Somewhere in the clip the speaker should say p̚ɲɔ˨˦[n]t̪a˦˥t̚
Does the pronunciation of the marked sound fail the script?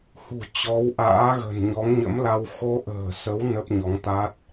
yes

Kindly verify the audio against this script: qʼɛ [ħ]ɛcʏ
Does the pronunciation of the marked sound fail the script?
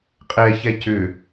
yes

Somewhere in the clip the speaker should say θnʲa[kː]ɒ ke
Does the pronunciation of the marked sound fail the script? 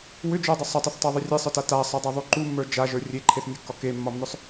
no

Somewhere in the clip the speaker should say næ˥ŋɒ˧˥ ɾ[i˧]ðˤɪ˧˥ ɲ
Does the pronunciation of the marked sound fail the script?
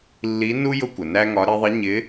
no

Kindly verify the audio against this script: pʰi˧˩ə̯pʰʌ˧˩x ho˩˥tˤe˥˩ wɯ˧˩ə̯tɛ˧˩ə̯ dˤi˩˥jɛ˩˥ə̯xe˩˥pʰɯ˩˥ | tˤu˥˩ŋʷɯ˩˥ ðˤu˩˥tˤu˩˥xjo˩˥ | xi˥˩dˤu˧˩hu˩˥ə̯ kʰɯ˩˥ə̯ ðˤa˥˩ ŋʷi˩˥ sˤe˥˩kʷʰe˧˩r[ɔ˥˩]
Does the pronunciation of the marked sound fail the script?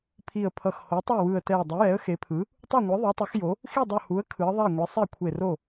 yes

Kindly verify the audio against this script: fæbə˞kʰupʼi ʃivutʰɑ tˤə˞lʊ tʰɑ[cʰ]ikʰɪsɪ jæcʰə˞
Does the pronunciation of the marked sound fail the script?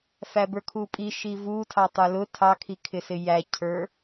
yes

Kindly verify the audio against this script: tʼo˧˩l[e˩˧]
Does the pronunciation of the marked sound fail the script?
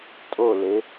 no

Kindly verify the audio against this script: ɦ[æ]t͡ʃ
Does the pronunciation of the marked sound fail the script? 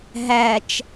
no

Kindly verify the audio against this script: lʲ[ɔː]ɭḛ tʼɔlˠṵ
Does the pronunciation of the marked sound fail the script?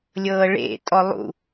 yes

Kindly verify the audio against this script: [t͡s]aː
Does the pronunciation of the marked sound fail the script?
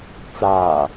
no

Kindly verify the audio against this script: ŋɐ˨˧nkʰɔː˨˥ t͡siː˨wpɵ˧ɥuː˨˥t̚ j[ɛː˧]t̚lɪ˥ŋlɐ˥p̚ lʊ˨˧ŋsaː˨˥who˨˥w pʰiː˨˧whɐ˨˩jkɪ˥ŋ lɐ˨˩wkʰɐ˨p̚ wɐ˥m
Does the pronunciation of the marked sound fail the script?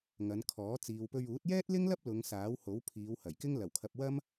yes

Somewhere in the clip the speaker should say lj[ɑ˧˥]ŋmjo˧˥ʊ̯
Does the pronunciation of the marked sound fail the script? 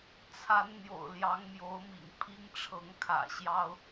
no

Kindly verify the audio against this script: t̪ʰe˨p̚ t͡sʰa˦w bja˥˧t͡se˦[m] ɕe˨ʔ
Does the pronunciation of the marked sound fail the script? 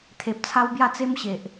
no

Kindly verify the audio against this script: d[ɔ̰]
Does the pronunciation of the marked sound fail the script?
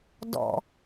no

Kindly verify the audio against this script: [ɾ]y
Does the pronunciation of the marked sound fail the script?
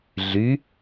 yes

